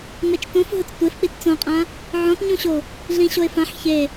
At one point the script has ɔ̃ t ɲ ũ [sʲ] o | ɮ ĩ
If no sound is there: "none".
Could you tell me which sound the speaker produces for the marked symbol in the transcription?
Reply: ɕ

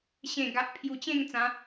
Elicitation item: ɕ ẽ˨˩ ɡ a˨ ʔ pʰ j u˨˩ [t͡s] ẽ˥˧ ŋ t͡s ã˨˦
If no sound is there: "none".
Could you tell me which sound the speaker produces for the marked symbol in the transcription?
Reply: t͡ɕ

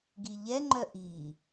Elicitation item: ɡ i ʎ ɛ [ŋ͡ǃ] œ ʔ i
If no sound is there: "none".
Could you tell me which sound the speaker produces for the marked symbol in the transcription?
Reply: ŋ͡ǃ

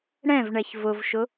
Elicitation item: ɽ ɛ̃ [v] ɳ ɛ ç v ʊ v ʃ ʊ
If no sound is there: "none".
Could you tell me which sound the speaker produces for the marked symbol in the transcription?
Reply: v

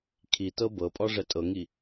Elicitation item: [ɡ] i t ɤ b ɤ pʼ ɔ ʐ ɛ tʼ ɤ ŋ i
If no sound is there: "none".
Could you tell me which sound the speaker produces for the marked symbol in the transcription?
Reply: kʰ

